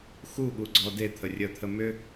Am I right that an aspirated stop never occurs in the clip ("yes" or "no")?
no